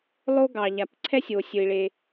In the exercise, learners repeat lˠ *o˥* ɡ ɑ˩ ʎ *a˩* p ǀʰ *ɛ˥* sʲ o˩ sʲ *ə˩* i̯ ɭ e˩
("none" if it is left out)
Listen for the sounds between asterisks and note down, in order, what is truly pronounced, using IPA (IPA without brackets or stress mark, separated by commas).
o˥, a˩, ɛ˥, ɵ˩